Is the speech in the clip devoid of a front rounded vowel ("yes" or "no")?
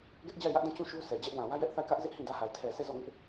yes